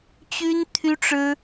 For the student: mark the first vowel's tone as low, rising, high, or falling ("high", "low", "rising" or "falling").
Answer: high